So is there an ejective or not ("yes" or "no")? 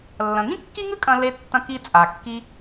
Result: yes